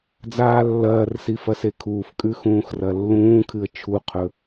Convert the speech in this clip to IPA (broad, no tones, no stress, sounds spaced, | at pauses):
d͡z aː lː ɐː r s i f ɐ s e kʰ uː f kʼ ʉ x ũː x r ɐ lː ũː kʰ ɨ ə̯ t͡ʃʰ u qʰ ɵ